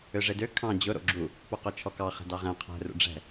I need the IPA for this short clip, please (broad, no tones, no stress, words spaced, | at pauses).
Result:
øʐedø kʰɑ̃ d͡ʑʊ ɾo̰ɡ͡ǁu | poqot͡ʃʰɔkɑ χɛ̤dɑʁɛ̃ qʰɛ̤ rṵɖ͡ʐɛ̤